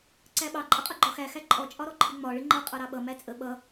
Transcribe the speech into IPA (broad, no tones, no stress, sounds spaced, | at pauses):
ǀ æ ɓ ɑ ǃʼ ə qʼ ʌ ɡ͡ǃ ɒ x æ x æ ǃʼ ɔ t͡ʃʼ ɒ ɾ ɔ ǃʰ ɪ ŋ͡m ɒ ɭ ɪ ŋ͡ǃ ʌ qʼ ɑ ɾ ɑ ɓ ʌ m æ t͡sʼ ə ɓ ʌ